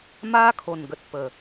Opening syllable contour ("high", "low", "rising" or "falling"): high